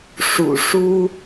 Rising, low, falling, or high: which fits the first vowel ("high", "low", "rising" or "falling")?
low